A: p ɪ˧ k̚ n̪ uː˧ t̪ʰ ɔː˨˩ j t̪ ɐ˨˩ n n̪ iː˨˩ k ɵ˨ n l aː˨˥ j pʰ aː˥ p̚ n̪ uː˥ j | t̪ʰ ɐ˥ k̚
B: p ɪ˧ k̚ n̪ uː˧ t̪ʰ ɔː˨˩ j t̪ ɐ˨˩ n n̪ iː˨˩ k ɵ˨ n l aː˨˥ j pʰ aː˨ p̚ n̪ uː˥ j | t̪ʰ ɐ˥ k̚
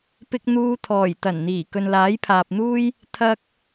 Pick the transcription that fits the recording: B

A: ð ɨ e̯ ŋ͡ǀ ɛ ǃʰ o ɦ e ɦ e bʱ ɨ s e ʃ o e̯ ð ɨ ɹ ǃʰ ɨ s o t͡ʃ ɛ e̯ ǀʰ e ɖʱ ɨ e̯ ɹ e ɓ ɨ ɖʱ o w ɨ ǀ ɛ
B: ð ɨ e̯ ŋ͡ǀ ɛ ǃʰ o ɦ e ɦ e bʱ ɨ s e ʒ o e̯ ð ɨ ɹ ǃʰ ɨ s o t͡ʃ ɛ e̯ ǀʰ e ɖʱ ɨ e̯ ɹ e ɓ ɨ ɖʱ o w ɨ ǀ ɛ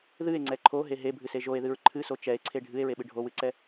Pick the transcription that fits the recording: B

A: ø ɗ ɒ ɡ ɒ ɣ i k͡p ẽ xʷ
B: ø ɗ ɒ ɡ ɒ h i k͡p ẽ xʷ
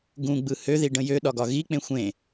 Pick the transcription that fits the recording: A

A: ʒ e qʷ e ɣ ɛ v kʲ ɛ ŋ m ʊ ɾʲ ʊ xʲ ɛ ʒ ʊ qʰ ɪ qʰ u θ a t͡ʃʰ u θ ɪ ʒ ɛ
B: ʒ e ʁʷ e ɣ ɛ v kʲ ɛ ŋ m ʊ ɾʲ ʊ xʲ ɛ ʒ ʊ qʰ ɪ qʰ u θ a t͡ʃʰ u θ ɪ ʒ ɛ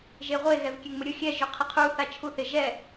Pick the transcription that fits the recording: B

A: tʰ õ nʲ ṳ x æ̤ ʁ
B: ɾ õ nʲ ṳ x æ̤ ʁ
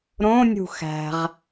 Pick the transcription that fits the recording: B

